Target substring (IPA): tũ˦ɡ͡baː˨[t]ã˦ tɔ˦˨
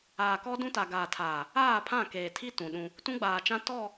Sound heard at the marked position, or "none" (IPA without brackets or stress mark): t͡ʃ